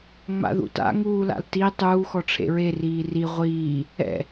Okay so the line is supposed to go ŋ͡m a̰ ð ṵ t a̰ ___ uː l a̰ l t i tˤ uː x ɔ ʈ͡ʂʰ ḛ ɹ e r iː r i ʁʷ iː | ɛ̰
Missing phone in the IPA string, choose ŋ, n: ŋ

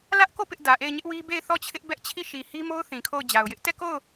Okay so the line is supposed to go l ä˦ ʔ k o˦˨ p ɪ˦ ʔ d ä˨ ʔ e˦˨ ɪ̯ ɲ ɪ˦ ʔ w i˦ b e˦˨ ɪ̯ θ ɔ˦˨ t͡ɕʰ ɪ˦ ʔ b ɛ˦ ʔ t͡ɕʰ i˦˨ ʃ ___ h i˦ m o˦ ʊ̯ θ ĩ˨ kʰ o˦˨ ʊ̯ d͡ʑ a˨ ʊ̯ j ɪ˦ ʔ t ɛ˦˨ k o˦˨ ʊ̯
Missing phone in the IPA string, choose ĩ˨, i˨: i˨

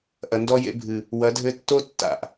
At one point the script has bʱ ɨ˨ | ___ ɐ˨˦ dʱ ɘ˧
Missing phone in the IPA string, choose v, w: w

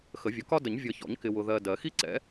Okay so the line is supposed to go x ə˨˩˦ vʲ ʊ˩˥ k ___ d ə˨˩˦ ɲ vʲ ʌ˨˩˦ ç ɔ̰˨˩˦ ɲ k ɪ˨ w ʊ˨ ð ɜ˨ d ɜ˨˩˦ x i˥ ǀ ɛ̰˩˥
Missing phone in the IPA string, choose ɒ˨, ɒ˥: ɒ˥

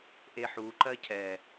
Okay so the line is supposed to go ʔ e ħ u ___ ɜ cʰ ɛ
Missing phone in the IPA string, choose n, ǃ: ǃ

